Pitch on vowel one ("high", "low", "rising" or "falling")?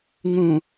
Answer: low